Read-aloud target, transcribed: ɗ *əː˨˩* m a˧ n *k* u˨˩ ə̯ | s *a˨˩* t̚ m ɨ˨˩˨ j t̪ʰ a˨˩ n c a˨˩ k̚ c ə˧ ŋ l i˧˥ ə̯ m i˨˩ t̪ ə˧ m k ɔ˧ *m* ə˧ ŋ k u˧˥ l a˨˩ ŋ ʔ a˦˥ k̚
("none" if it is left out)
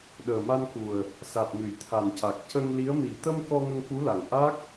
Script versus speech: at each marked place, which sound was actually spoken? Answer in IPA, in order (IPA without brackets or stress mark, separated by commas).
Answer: əː˨˩, k, a˨˩, ŋ